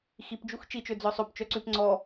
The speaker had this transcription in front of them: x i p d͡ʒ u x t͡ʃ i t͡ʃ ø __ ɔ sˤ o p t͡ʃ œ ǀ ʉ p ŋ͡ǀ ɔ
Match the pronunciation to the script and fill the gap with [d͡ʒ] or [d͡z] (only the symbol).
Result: d͡z